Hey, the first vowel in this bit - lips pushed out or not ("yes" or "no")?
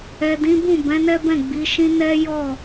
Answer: no